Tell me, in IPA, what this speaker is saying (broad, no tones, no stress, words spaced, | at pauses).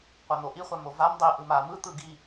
qʷan̪oʔi χʷamovam dˤi ʔɯma mɯ t̪ɯɡi